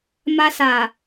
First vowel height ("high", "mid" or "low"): low